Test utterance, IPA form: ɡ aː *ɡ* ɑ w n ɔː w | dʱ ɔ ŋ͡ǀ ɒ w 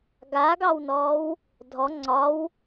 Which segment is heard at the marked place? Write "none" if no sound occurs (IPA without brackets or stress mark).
ɡ